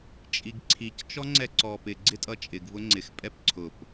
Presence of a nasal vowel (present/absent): absent